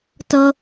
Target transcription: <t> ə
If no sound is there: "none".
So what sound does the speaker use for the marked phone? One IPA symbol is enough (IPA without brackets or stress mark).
t